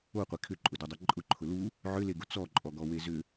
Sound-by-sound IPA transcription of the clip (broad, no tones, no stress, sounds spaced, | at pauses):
o qʷ e kʰ ʏ ǃʼ ʊ d o dˤ ɛ ǃʼ ʊ ǃʰ ʊ l u | ʕ ʏ l e ɡ ʊ t͡s ɔ ǃʼ ɔ ɡ ɔ w e z ʏ